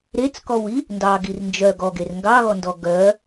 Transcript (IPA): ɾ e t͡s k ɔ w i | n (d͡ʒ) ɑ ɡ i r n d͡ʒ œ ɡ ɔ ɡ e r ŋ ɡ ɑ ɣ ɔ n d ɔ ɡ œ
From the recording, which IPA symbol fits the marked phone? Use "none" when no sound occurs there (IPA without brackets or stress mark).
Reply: d